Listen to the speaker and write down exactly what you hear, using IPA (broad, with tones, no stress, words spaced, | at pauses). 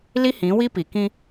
li˦hĩ˨˦wi˦pi˨ kĩ˦